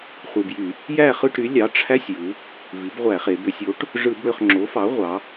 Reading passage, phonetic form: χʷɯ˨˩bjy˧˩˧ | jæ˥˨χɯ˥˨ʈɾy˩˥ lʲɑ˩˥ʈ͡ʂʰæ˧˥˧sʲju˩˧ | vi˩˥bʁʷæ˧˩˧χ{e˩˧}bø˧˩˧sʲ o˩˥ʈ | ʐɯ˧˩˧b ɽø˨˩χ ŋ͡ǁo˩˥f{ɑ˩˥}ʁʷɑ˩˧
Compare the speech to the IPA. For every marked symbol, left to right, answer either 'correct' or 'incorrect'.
correct, correct

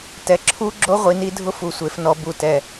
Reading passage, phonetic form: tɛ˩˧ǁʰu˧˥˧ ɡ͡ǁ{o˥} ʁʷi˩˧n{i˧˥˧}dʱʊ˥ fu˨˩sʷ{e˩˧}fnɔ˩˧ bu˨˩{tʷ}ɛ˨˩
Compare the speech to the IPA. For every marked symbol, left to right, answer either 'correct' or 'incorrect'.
correct, incorrect, correct, incorrect

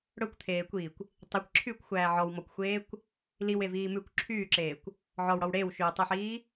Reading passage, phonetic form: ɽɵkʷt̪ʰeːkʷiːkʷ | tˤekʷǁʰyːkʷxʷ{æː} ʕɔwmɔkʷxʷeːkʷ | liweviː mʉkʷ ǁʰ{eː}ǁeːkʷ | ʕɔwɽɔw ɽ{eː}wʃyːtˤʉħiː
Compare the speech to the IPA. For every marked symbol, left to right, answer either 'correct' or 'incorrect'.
correct, incorrect, correct

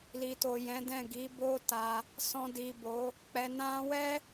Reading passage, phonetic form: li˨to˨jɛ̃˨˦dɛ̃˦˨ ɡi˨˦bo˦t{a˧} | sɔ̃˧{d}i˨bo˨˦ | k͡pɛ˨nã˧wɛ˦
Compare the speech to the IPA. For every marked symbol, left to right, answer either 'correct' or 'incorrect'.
correct, correct

